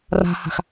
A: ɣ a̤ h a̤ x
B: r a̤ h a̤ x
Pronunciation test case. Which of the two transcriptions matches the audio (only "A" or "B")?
B